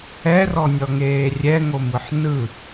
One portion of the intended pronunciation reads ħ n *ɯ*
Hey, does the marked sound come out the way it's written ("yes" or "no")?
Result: yes